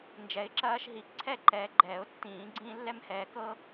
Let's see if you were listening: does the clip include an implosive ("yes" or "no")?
no